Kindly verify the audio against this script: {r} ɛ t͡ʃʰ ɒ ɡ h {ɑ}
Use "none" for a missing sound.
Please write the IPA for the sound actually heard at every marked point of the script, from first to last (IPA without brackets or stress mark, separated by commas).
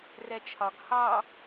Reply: r, ɑ